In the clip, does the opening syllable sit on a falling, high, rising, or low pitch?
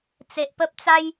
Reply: low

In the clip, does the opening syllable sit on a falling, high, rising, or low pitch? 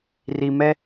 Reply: low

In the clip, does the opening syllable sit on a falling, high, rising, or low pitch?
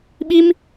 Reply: high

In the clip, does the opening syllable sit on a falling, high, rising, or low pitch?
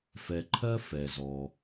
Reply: low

